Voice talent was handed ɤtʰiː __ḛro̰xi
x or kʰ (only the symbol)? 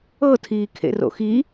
kʰ